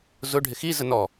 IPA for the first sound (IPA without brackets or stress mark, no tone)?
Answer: z